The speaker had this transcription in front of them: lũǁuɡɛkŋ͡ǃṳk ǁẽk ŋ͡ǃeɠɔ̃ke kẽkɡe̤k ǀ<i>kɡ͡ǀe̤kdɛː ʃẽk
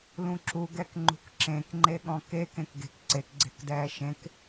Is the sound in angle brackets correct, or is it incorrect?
incorrect: e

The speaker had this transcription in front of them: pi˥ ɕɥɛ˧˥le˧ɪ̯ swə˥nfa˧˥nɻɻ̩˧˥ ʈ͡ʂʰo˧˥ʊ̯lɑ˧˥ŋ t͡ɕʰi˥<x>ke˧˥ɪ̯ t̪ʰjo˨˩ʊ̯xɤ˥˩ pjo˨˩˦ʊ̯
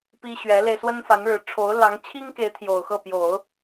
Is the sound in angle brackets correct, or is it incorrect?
incorrect: ŋ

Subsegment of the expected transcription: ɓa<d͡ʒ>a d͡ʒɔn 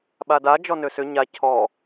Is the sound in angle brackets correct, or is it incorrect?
incorrect: d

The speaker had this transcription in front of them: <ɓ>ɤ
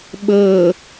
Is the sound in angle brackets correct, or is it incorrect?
correct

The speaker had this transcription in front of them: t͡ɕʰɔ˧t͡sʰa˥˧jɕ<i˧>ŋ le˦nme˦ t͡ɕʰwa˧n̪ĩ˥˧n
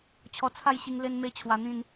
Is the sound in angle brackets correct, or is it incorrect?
correct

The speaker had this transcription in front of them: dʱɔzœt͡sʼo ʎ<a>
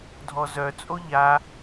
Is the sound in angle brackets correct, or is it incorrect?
correct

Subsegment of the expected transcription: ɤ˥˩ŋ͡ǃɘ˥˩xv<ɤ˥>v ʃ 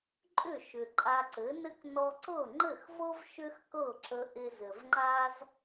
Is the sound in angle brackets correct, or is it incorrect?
correct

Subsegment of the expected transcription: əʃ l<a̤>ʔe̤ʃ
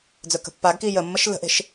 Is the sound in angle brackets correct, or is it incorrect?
incorrect: ə̤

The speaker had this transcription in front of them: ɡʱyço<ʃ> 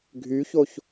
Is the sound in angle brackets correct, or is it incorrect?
incorrect: ç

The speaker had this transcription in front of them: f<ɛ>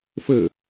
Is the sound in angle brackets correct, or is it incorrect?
incorrect: ɘ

